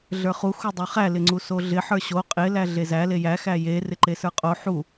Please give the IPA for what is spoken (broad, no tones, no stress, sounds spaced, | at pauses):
ɮ ə˞ χ u x u dˤ o χ æ l ɪ ŋ͡ǀ u s o ɮ ɪ ħ ə˞ ɕ o qʼ ɪ l æ ɮ e z æ l e j æ x æ j e r ɪ ǃ e s ə˞ qʼ o ħ u